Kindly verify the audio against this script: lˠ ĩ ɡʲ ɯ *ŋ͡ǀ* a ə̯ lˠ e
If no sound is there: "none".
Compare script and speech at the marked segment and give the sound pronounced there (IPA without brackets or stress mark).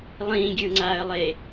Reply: ŋ͡ǀ